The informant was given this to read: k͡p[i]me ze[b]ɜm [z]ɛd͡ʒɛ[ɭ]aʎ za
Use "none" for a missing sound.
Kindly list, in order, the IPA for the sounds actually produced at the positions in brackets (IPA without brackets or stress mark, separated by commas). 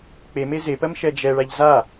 e, p, ʃ, ɭ